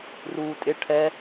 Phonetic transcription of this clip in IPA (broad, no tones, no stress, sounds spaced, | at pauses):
r uː tʼ ɪ ʈʰ ɛ